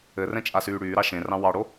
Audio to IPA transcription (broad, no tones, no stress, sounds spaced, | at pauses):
ɘ r ɛ̃ t͡ʃʼ a s yː ɽ yː ɾ ɑ ʃ ẽ r ɑ̃ w ɑ ɽ o